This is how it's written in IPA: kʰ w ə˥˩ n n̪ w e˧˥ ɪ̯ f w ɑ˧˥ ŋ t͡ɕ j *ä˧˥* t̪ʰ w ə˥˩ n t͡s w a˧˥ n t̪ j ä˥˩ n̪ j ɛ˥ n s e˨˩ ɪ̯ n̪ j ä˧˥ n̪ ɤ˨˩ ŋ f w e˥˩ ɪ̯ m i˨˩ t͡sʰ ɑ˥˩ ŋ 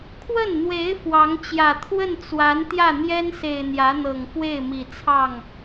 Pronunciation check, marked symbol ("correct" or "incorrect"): incorrect